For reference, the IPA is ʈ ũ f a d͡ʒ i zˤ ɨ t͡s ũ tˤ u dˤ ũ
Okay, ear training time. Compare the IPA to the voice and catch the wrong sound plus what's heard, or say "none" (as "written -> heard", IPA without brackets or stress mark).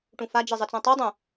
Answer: none